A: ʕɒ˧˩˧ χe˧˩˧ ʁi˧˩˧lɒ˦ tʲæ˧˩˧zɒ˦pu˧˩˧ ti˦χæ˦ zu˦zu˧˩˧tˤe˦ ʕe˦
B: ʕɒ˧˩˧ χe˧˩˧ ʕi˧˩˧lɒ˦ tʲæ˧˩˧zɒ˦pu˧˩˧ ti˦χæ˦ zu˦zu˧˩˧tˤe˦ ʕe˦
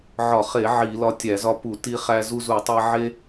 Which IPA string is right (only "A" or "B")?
B